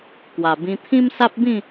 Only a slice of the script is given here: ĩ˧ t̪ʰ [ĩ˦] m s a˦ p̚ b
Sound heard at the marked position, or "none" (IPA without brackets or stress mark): ĩ˦